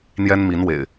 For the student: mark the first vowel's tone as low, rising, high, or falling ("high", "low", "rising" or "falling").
high